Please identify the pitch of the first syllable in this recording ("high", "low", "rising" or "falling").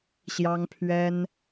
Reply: high